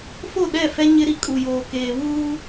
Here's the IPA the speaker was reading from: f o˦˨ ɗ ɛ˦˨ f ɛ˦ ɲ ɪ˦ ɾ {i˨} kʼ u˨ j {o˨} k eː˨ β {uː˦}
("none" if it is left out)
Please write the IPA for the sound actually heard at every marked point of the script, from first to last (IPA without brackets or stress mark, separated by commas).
i˨, oː˨, uː˦